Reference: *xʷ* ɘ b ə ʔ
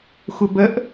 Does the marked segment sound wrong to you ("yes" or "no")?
no